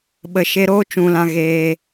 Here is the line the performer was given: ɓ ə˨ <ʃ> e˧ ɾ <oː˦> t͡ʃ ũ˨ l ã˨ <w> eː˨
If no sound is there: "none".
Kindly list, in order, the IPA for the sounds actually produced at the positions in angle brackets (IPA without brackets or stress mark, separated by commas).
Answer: ʃ, oː˦, ɣ